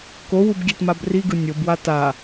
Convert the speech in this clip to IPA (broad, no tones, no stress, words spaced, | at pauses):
kowub ɡʲɛtmabriɡɯ nʲobwa ta